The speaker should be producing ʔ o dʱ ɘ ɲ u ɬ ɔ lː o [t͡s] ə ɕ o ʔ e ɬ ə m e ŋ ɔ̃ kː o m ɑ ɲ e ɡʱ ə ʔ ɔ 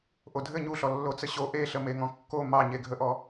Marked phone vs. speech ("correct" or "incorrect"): correct